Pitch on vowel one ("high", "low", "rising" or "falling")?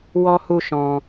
high